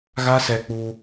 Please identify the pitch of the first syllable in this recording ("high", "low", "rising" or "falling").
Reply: high